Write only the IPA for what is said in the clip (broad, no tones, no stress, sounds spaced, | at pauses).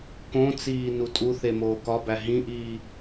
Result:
k õ t͡s iː n u tʼ u θ e m oː k ɒ b æ ɦ ĩ ʔ iː